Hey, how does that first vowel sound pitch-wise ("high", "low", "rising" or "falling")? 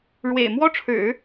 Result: low